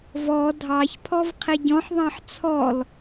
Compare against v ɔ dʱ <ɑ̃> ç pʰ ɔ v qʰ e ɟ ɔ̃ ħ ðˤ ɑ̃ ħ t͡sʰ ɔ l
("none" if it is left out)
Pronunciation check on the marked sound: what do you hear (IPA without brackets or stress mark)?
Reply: ɑ